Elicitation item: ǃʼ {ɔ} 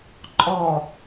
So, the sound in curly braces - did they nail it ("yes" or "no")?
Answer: yes